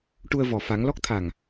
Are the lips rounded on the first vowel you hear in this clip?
yes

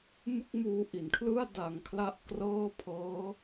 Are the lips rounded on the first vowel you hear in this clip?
no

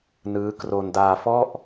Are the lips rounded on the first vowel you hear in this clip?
no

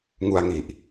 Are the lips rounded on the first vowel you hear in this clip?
yes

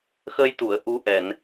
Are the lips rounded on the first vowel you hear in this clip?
no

